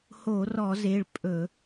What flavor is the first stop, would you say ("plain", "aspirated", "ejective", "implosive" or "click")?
ejective